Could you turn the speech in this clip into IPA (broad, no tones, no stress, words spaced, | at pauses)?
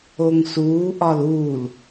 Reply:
oŋsuː ʔɒluːl